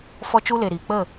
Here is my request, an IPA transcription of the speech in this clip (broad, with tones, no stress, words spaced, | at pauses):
fɔ˦t͡ʃu˦le˨ɾiː˨ k͡pə˦˨